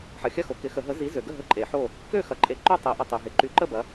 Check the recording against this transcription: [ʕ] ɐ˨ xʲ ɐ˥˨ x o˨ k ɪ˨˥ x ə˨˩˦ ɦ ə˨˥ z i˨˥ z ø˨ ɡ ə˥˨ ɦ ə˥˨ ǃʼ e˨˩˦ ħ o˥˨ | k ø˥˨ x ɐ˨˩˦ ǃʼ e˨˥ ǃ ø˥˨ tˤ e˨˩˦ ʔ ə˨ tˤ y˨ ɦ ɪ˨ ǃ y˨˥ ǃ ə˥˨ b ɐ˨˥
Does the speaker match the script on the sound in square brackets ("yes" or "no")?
no